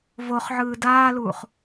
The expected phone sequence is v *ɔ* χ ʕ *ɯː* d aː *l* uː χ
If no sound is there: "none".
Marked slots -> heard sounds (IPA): o, ɯː, l

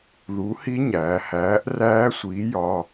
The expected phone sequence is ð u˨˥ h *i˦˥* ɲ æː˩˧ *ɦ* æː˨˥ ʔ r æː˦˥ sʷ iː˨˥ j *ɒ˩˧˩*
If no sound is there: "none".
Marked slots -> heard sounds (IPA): i˦˥, h, ɒ˩˧˩

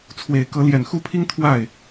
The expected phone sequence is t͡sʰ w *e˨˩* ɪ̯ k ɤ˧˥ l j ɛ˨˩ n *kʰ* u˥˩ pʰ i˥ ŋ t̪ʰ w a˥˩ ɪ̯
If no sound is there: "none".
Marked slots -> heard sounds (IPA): e˨˩, x

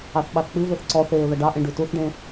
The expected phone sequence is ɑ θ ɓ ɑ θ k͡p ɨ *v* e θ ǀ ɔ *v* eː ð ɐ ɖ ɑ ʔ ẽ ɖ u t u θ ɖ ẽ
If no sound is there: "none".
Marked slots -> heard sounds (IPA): v, θ

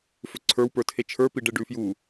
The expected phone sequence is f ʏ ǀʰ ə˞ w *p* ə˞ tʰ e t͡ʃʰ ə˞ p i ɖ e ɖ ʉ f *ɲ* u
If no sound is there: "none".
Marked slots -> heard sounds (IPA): p, j

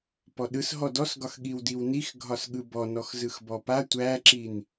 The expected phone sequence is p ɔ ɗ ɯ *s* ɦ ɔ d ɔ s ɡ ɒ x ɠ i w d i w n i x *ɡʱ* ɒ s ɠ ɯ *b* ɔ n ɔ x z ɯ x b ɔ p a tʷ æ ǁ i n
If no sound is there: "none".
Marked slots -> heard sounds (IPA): s, ɡʱ, b

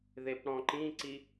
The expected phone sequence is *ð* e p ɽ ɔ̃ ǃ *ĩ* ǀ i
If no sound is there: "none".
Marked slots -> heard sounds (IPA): ð, ĩ

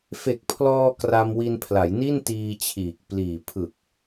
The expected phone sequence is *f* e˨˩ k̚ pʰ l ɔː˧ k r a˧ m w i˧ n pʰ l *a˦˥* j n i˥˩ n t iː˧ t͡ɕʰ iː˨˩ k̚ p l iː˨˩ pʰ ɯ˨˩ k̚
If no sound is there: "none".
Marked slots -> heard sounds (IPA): f, a˩˦

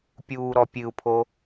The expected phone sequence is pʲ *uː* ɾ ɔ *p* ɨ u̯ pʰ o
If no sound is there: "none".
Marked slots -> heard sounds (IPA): uː, pʲ

